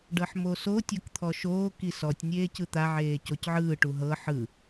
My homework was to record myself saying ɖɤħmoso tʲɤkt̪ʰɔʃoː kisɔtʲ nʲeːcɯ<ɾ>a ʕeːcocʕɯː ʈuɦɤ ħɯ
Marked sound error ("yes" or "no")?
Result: yes